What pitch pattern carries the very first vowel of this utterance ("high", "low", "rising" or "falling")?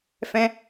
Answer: high